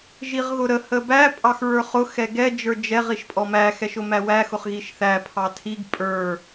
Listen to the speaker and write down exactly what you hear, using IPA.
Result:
ʒ i ʁ ɣ ʊ ɾ ə h ə b æ pʼ ɑ x ɹ ə˞ χ ʊ x ɛ ɡ ɛ d͡ʒ ə˞ d͡ʒ ɛ ʁ i ʃ pʼ ɔ m æ x ɛ ʃ ʊ m æ w æ x ʊ χ ɣ i ʃ θ æ pʰ ɑ tʰ i ɡ pʼ ə˞

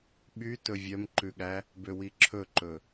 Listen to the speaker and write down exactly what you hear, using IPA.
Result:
ɓ y t ɵ vʲ œ m ǃ ʉ ɠ æ | b ø w i ǁʰ ɵ ǃ ɵ

